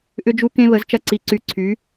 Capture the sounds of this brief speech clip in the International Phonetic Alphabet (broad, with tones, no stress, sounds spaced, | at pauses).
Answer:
ʔ ʏ˧ d͡ʒ u˧ k ẽ˧ β ə˩˧ z t͡ʃ ɐ˧ ǀ i˩˧ ǀ y˩˧ ǀʰ y˩˧